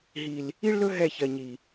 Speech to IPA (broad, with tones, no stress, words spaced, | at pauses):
ɦi˨l | i˦ɭlɵ˦ ɦɛ˦˨çɜ˨ɲi˨